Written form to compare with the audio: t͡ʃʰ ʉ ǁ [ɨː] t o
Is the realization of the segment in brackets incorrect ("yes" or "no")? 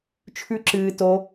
no